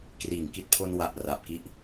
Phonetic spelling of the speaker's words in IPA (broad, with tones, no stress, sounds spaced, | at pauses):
k r iː˩˦ ŋ k i˨˩ t̚ pʰ o˧ n w a˨˩ ʔ r a˨˩ p̚ k i˦˥ ʔ